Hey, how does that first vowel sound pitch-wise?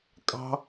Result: high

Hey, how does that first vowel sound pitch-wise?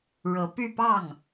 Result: rising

